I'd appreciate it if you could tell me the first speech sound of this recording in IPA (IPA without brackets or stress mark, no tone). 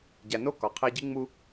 ɟ